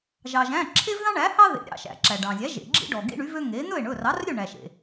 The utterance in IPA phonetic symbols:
ʒ ɑ˩ ʒ æ̃˩˧˩ ǁʰ e˦ v ð ɑ̃˦ ɳ æ˩˥ h ɑ˦ ð ḛ˩˥ ɾʲ ɑ̰˩ ʃ æ̰˩ ǁ æ˩ ɖ ɑ̃˩ zʲ æ˩˥ ʒ ḛ˩ ɡ͡ǁ ḭ˦ ɖ ɔ˩ ɡ ḭ˦ ɳ y˩˥ v ø˦ ŋ e˩˥ n̪ ɵ˥˩ e̯ ɳ ɵ˩˧˩ r ɑ˩˥ r ɾʲ ø˥˩ ɳ æ˩ ʃ ḛ˩

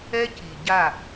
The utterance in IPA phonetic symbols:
ɛ˦ c i˨ ɟ a˦˨

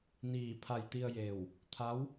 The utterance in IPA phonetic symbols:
n iː˧˩ pʰ a˧˩ j t̪ i˧ ə̯ j eː˧˩ w | t̪ʰ a˧˥ w

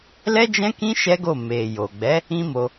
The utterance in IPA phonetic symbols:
l ɛ˦ d͡ʒ ɛ̃˦ k ĩ˦ ʃ ɛ˦ ɡ o˦˨ m e˨ j o˨ ɡ͡b ɛ˨˦ | ĩ˦ m o˧

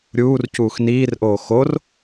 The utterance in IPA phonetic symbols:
ɾʲ uː r c uː x n iː r ʔ oː x o r

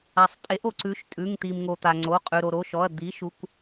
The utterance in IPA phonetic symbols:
a˩ sˤ tʼ e˩˥ ʔ o˩ ǀ ʉ˩˥ ʃ tʼ ʉ˩˧˩ ŋ t̪ i˩ m ŋ o˩ t̪ a˩ ŋ͡ǀ o˩˧˩ qʼ ʉ˩ ɾ o˩ ɾ o˩˧˩ ʃ ɔ˩˧˩ ɐ̯ d̪ i˩˥ ʃ u˩˧˩ kʷ

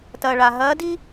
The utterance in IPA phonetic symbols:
t ɐː˩ ɭ a˩ ɦ ɐː˧˥ d i˥

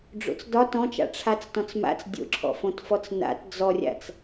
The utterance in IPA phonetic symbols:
ɖ͡ʐ o̰ t͡s d ɒ t ɔ̃ t͡ʃ a̰ ʈ͡ʂʰ a t͡s t ɔ̃ t͡s m a̰ t͡s dʲ o̰ ǁʰ ɔ̰ f õ t f ɔ t͡s n a̰ t d͡z ɔ rʲ a̰ t͡s

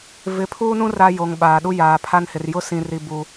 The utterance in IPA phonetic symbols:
v ɪ˨˦ pʰ uː˦ n ũ˦ r a˦ j o˨ ŋ ɓ aː˨ ɗ u˦ j aː˨ pʰ a˦ n h ɪ˨ r j ʊ˦ s ĩ˨ r i˨ b u˨

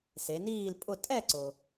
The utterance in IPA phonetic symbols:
s e˩˧ n iː˥˨ l pʼ ʊ˥˨ tʼ ɛ˥˨ ǀ ʊ˩

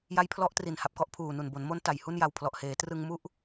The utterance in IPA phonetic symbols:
j a˦˥ j pʰ l ɔ˦˥ ʔ t r i˨˩ n h a˨˩ p̚ k ɔ˦˥ ʔ pʰ uː˨˩ n u˨˩ n b o˩˦ n m o˦˥ n t a˨˩ j h u˥˩ n j a˧ w pʰ l ɔ˨˩ ʔ h eː˩˦ t r ɯ˧ ŋ m u˥˩ ʔ

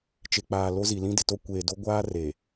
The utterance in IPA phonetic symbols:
t͡ʃ e˨ k͡p aː˨ l o˦ z i˨ l ĩ˦ d ɪ˨ t o˦ kʷ eː˨ d o˦ ɡʷ aː˦ r e˨

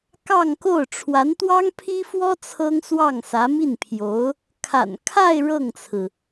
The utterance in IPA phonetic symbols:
k ɑ˥˧ ŋ k o˥˩ ʊ̯ ʈ͡ʂʰ w a˧˥ n t̪ w ɑ˥ ŋ pʰ i˥ f w ɔ˥ t͡sʰ ɤ˥ ŋ s w ɑ˥˩ ŋ s ä˧˥ m i˥˩ n pʰ j o˧˥ ʊ̯ | kʰ a̰˨˩ n kʰ a˥˧ ɪ̯ ɻ ɤ˥˩ ŋ t͡sʰ ɹ̩˩

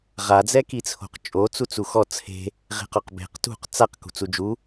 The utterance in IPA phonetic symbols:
ʁ a d͡z ɛ k i t͡sʰ o̤ q t͡ʃʼ o t͡s u t͡s u x ɔ t͡sʰ e̤ | ʁ e̤ q ɔ q b e̤ q t ṳ q t͡s a q k ṳ t͡s u d͡ʒ u

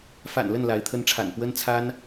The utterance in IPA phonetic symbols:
f a̰˨˩ n l ə˥˨ n l a˨˦ ɪ̯ t̪ʰ ə˦ n ʈ͡ʂʰ a̰˨˩ n p w ə˦ n t͡sʰ a˦ n

